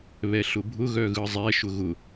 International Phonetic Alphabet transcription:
β ɛ ɬ ʊ bʱ ʊ ɣ œ ɣ ɯ zˤ ɛ ʃ ʊ ɣ ʊ

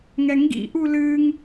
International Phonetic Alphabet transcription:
ŋ ɛ ŋ ɡ ḭ ʔ u l ɨ ŋ

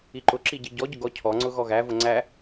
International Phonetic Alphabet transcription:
i ǃ ʊ ǁ i ɟ i ɟ ɔ ɟ ʊ ɡ ɔ cʰ ɔ ŋ͡ǀ ʊ ɣ ɔ ɣ æ v ʊ ŋ͡ǀ æ

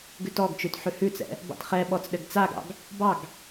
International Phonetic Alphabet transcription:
ɡ ʉ t ɔ ɡ t͡ʃ ʉ t ħ ʉ h ʉ t͡s ɛ̰ | b ɑ̰ t χ ɛ ɓ ɔ t͡s ɗ ɘ ɡ t͡s a ɡ ɑ̰ ɡ | b ɑ ɡ

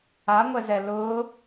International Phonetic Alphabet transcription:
a ŋʷ ɛ z ɛ l ʊː

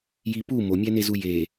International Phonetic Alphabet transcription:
j i p u m o mʲ æ n e z u j e

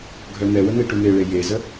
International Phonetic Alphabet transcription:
ɡʱ œ n̪ ɛ w ə n̪ e ʈ u n̪ e ɭ e j e z ə

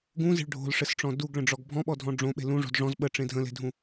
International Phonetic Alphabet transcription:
ɡ ũ z e̤ ɭ ɖʱ o̤ l ʂ ɘ s ʈ͡ʂ ɔ̃ d u ɡ ɭ ə̃ ɖ͡ʐ ɔ ɡ bʱ ɔ̃ ɓ ɔ dʱ ɔ̃ ɖ͡ʐ õ ɓ e̤ l ũ ʐ o̤ d ʐ ɔ̃ z ɓ ə ʈ͡ʂ ẽ dʱ ə̃ l e̤ dʱ ũ

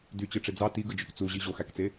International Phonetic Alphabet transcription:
d y t͡ɕ ɯ ʈ͡ʂ e d͡z ɑ t i ɡ ɯ d͡ʒ ø k t͡s u ʑ i ʑ o x æ k t͡s e

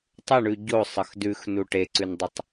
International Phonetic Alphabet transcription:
tˤ ə ɳ ʉ ɟ o sˤ ə x d ʉ x n u ʈ e ǀ ʉ n dˤ u tˤ

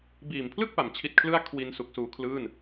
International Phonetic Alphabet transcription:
b iː˨˩ m pʰ l ɯ˥˩ k̚ p a˩˦ m t͡ɕʰ i˦˥ t̚ kʰ l ɯ˥˩ a̯ kʰ w i˧ n s u˨˩ k̚ s uː˧ kʰ l ɯː˥˩ n

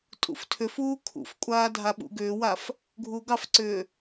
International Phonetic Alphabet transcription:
tʼ ṵ f tʰ ʏ f uː kʰ ṵ f kʷʼ aː dʱ a ɓ ṵ ɡ ʏː w a f | ɡʱ uː ɡ ɑ f ǀ ʏː

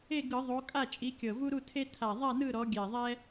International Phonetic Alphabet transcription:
e˥˨ ɡ ɯ˧˩˧ ðˤ o˨˦ kʼ a˥˨ t͡ʃʼ i˨˦ kʲ ɤ˨˩ v u˦ ɾ u˥˨ tʰ e˦ tʰ a˨˩ ðˤ a˥˨ n ɯ˥˨ ɾ ɔ˨˦ ɡʲ ɛ˨˩ ðˤ ɛ˦

